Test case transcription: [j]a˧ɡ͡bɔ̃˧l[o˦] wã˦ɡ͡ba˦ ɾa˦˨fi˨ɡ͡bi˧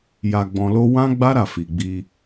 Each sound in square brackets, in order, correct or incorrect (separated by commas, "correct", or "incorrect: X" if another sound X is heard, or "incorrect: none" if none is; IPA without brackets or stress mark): correct, correct